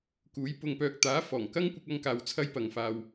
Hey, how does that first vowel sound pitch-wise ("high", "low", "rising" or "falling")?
rising